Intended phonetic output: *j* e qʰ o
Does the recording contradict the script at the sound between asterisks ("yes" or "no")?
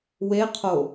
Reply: yes